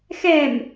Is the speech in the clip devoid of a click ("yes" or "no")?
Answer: yes